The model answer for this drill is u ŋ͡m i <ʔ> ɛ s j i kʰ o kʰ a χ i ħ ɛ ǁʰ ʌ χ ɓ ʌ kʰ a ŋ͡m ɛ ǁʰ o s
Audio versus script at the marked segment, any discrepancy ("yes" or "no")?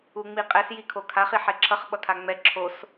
yes